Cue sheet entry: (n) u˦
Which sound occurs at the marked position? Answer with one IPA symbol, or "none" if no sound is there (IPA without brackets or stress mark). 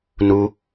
n